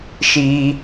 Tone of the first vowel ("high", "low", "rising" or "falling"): high